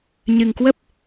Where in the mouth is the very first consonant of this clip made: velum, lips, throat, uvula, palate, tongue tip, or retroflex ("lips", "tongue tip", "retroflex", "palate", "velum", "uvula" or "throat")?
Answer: palate